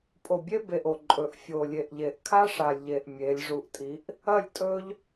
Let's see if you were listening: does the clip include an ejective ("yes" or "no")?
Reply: yes